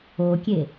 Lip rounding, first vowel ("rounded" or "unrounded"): rounded